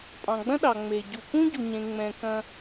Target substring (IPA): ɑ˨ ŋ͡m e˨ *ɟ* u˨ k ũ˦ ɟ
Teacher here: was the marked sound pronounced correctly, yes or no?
yes